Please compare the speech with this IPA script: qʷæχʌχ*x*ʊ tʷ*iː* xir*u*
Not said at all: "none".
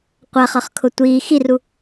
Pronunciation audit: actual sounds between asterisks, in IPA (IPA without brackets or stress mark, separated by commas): kʰ, iː, u